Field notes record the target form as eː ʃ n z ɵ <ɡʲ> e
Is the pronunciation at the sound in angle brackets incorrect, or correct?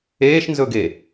incorrect